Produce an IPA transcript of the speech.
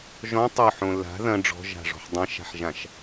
ʒɔ̃ tˤoħõ la̤ ðɐ̃ ɖ͡ʐɔ̤ʒa̤ʐɔ̤ħ dˤãʃa̤ħʒãʃ

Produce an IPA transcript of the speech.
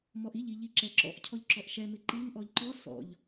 mɔʔiʎiʎi ǁɛǁɔ̰ʔ cʰɔʎǁɔʔʃɛmɪ ǃiŋ ʔɔʎǃɔ sɔ̰ʎ

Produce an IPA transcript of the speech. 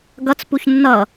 ɡʌt͡s puçnːʌ

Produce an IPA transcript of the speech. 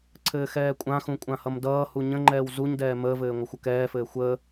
ǀʰɘːxɛːkʷʼãxũ kʷʼãhʌmdʌːhu ɲə̃ŋ͡ǃɛːw zuɲdɛː məːvɘː ŋʷəxʷəkɛːfɘː xʷəː

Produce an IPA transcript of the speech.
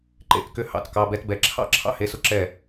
ǃḛ˥˧tkʏ˥˧ hɑ̰˧˥˧tkɑ˧˥˧bɛ˥tbɛ˧˥˧ ǁʰɑ̰˥ ǁʰɑ̰˥he˧˥˧sʊ˥ǁɛ˥˧

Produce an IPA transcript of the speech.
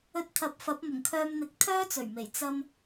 ɵ˧t̚t̪ʰɐ˨˥p̚ fɐ˨˥p̚mʊ˨˩ŋkʰœː˧mn̪ɪ˨˥k̚ t̪ʰœː˥t͡sɵ˨˩ɥme˨˩j t͡sɐ˧m

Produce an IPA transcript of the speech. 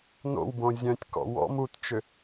no̰wbõ zʲœ̃tʲkɔ̰ wɔ̰m utt͡ʃʏ

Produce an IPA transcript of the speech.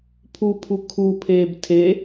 pʰu pʰukʰupʰeːb tʰe

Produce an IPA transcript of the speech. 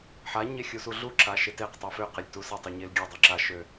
ħa ɲexʲusuɮu ǁaʃeteq tˤeføqelʲ tusatˤø ɲelɡʲø dˤøǁa ʃø

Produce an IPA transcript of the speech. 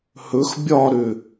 hɵx bʲɒɾʏ

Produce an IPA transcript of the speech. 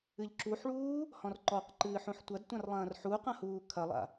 ɨʎǁuħɭuː | hɔ̃rǃɔqǃɨː ħũħtʷɐdtʷãr lˠɐ̃ːrħuqɐ̃ huːkʰɐlˠa̰

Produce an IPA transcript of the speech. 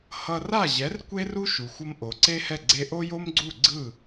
hʌ˧ra˥˩ʑɛ˩˥r kʷe˥ru˥ ʃu˩xʷʌ˧m ʔo˩ǀe˥hɛ˥˩ ɡ͡ǀe˧ʔo˥jo˥mɡ͡ǀu˥˩ ɡ͡ǀɯ˥˩

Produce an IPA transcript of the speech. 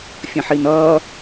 fʲə̃ħinʌː

